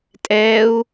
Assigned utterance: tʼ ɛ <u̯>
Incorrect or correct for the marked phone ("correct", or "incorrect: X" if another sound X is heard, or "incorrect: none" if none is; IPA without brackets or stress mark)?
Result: correct